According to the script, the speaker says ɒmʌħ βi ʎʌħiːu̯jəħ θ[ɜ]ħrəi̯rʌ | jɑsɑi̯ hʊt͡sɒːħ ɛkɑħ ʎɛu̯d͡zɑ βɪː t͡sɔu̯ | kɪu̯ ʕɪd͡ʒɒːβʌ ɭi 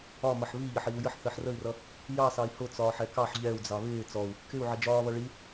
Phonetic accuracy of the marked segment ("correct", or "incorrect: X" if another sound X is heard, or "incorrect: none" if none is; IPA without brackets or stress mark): correct